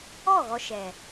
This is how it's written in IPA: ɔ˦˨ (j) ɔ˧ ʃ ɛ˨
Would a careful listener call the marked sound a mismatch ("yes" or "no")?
yes